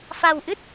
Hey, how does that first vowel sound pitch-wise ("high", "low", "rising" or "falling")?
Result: low